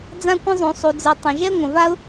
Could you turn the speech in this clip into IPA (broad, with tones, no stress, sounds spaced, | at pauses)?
d͡z ã˥ kʷ ə̃˥ zˤ ũ˩ sˤ u˩ d͡z ɯ˩ tˤ ə̃˩ ʒ ɛ˥ ŋʷ ə̃˩ v a˥ ʊ̯